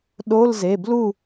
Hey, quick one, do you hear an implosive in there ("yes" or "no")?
yes